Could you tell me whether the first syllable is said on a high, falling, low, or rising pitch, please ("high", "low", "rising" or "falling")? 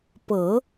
low